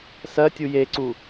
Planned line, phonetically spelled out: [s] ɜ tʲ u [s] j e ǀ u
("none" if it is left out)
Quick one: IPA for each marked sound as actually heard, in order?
s, none

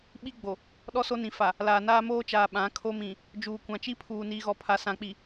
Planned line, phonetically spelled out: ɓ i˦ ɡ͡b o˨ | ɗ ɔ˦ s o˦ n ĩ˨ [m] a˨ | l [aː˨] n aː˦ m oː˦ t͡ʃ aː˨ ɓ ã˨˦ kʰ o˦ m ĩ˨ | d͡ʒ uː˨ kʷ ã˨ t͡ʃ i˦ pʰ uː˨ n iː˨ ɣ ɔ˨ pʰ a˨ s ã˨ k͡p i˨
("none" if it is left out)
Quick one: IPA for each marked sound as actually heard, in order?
f, aː˨

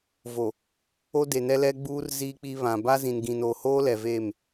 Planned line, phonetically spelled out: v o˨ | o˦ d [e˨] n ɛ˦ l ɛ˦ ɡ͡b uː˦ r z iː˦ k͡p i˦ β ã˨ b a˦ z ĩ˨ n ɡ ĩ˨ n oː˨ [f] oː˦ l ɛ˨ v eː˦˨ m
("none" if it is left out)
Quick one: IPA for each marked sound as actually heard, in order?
e˨, h

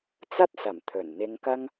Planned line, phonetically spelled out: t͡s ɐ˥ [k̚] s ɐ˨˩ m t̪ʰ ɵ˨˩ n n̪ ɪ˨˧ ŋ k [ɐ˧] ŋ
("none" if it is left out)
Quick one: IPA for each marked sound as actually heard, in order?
t̚, ɐ˧

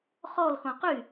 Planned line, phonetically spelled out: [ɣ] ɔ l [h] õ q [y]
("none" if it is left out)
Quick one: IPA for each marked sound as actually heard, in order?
χ, x, y

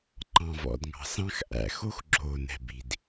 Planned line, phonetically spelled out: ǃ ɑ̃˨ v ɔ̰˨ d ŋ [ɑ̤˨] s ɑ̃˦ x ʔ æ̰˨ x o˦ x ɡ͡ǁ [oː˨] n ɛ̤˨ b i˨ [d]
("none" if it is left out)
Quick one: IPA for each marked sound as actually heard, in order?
ɑ̤˨, oː˨, d

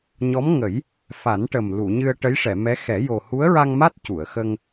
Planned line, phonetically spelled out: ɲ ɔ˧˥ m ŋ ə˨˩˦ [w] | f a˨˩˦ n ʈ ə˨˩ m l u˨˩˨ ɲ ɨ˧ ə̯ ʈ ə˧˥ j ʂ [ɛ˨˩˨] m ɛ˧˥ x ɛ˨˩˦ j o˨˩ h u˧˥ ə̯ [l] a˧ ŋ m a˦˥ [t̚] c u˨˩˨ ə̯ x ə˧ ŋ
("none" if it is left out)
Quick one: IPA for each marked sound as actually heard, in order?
j, ɛ˨˩˨, ɹ, t̚

